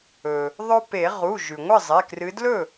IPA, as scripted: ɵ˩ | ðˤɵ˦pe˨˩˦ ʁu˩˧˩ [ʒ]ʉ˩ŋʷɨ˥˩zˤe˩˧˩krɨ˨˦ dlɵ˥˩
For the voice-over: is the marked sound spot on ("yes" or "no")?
yes